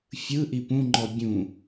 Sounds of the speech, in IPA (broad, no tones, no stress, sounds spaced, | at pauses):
fʲ ɯ ʔ i p ũ ŋ͡ǃ ɔ bʲ ũ